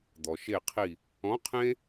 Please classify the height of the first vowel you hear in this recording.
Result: mid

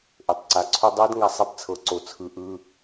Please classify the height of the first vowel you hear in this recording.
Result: mid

